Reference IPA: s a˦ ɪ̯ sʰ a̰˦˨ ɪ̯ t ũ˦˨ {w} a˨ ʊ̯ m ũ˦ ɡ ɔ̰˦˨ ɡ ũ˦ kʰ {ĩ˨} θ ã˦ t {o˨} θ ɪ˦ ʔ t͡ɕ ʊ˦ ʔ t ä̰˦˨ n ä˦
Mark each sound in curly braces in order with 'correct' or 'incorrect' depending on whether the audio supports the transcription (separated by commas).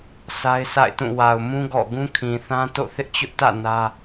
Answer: correct, correct, incorrect